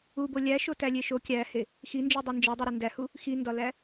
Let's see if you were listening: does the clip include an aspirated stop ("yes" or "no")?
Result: no